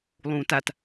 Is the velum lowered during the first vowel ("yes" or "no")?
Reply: yes